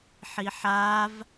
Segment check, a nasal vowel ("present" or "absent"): absent